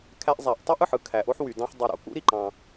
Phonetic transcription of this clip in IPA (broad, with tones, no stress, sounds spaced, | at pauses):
kʰ æ˦ ʔ zˤ æ˨ ʔ tˤ u˥ ʔ ɯ˨ ħ ɯ˥ kʰ æ˩ ʔ o˦ ħ w y˨ d ɑ̃˦ ħ dˤ u˨ ɾ o̰˩ k ṵ˥ ɾ i˩ ǃ ɑ̃˨